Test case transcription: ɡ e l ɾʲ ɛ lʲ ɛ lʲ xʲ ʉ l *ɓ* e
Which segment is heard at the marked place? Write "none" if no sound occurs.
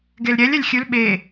ɓ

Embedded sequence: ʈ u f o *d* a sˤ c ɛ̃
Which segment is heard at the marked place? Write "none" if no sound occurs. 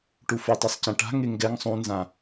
tˤ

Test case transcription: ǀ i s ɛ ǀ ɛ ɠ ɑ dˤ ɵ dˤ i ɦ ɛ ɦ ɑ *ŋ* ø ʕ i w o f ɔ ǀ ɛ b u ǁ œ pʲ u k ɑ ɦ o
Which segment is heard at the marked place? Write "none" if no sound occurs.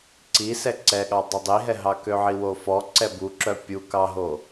k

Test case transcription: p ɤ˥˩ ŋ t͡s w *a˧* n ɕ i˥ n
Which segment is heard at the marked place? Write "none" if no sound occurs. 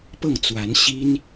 a˧˥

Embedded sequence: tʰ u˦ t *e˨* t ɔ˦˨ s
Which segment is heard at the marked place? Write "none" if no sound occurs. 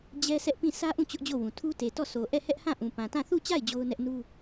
e˨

